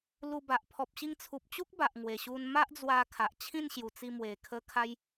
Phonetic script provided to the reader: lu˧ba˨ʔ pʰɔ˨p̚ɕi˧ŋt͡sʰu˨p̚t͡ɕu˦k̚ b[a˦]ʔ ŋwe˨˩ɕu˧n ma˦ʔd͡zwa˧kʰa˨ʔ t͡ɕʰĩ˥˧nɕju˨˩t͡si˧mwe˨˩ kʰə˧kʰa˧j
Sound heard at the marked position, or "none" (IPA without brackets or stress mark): a˨